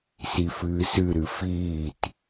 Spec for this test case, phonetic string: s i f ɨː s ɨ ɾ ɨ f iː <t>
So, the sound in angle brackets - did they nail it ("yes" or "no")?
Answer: yes